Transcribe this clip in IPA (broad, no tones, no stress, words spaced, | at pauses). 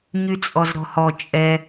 ɲyt͡sʼɔzɾɔ̤hɔ t͡ʃʼɛ